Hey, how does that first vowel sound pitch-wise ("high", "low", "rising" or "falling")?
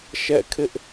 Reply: falling